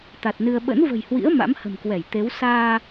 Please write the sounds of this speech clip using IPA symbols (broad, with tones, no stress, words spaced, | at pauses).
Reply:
t̪a˨˩t̚nɨ˧ə̯ ɓə̰˧˥nvə̤˨˩jhwḭ˧˥ə̯ ma̰˧˥mhə̤˨˩mkwɛ˧˩j t̪e˨˦w saː˧